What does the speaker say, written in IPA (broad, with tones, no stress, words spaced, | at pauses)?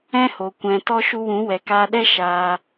ɛ̃˦ho˨ kʷɛ̃˨tɔ˦ ʃu˧wũ˨˦ wɛ˨kaː˧ɗɛ˦ ʃaː˧